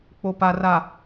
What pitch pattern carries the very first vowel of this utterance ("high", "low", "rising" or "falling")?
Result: low